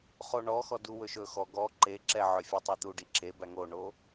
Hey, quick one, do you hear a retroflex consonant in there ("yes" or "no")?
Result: yes